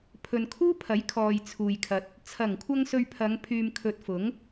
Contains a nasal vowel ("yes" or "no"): no